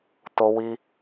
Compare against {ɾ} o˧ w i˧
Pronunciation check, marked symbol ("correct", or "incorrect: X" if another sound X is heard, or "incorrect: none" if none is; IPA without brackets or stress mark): incorrect: t